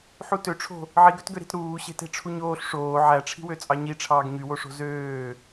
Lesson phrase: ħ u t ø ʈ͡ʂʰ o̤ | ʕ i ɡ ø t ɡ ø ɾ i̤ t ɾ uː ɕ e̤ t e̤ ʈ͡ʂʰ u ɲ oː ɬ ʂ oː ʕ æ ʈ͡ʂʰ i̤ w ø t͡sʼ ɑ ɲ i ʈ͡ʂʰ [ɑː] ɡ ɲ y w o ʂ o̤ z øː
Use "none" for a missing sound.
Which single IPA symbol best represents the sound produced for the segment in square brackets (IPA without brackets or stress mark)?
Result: ɑː